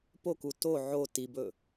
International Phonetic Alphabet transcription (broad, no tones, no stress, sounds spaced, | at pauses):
p o k u t o ʕ o t i b ɵ